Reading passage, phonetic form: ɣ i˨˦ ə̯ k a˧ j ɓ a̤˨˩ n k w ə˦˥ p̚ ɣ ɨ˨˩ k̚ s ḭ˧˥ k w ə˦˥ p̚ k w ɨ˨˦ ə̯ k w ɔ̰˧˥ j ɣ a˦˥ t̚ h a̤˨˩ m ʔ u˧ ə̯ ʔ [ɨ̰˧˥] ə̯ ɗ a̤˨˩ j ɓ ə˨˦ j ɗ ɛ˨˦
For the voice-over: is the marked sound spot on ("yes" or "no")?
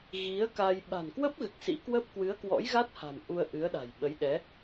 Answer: no